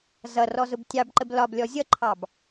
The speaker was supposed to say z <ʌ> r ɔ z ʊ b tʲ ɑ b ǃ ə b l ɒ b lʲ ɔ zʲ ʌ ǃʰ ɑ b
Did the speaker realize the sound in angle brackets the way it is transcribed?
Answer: yes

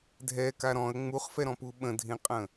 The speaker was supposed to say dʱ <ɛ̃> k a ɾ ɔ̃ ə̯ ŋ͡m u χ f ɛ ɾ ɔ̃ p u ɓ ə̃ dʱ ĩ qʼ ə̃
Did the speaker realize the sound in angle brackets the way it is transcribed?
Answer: no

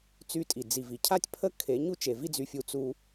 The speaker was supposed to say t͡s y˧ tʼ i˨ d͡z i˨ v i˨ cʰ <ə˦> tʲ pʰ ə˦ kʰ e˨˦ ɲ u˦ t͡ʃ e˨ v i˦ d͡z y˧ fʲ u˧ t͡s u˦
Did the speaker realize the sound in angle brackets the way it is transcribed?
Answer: no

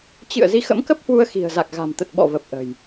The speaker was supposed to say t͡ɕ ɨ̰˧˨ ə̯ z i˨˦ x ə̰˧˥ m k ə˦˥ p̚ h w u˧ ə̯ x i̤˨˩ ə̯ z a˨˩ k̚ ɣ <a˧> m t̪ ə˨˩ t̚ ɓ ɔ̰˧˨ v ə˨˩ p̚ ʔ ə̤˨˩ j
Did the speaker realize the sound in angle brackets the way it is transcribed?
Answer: no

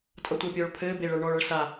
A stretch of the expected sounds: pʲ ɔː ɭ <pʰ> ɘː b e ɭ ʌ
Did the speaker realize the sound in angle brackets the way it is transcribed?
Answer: yes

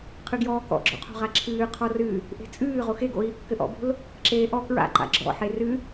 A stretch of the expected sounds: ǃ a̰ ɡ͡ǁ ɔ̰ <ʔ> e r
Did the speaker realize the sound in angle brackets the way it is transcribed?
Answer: no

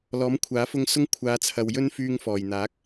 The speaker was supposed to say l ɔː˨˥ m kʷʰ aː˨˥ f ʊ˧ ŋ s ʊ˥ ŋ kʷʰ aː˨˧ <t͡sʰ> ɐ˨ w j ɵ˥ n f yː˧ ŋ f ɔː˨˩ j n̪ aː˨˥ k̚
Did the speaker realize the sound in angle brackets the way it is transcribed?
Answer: yes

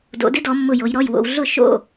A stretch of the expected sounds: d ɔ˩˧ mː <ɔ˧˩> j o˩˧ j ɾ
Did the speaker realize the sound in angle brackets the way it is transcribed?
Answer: no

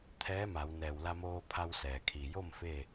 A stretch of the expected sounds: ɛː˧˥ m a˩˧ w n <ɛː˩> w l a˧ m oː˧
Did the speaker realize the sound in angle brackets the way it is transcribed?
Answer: yes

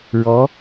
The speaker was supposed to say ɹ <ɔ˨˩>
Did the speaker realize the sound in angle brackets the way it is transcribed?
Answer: no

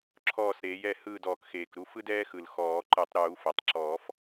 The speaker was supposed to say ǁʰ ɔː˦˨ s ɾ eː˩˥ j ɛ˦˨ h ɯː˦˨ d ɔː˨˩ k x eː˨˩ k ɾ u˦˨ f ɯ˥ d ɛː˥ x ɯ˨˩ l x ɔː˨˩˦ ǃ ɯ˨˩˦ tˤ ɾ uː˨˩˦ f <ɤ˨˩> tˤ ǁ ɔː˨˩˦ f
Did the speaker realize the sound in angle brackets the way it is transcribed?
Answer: yes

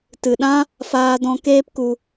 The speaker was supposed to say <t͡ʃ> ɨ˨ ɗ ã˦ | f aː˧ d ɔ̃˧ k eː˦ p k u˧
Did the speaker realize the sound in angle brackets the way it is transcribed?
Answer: no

